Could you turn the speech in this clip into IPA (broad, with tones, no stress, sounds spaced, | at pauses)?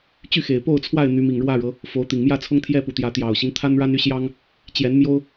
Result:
t͡ɕ y˥˨ x e˨˩ ɪ̯ p o˥˨ ʊ̯ t͡sʰ w a˥˨ ɪ̯ n̪ y˨˦ m i˨˩ ŋ ɻ w ä˥˨ ɻ ɤ˨˦ | f o˨˦ ʊ̯ t̪ i˨˩ ŋ m j ä˥˨ t͡sʰ ʊ˦ ŋ t̪ʰ j ɛ˦ p u˨˩ t̪ j ä˨˦ t̪ j ɑ˨˩ ʊ̯ ɕ i˦ ŋ t̪ʰ a˦ n ɻ a˦ n y˦ ɕ j ɑ˦ ŋ | t͡ɕ j ɛ˨˦ n m j o˦ ʊ̯